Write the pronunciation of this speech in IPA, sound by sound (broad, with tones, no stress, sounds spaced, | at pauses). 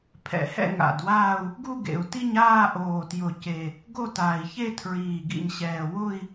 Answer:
pʰ ɛ̰˨˩ h ɛ̰˥˧ ŋ a̰˨˩ d w aː˥˧ u̯ | ɡ u˥˧ ɡ ḛ˨˩ u̯ t i˥˧ ɲ aː˥˧ ʔ oː˨˩ t j ʊ˨˩ c e˨˩ | ɡ o˥˧ t aː˨˩ i̯ ç e˥˧ tʰ ɹ iː˨˩ ɡ ḭ˨˩ ɲ ɕ ɛː˨˩ w ʊ˥˧ i̯